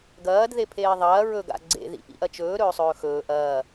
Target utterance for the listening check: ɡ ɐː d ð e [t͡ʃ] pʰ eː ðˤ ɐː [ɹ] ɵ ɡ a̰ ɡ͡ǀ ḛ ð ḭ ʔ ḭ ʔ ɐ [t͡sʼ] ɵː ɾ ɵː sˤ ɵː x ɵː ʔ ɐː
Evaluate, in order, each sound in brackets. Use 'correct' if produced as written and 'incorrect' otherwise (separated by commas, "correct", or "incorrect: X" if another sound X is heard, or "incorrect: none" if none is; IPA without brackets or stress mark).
incorrect: none, correct, incorrect: t͡ʃ